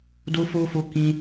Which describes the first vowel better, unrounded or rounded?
rounded